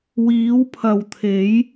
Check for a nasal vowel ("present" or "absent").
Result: absent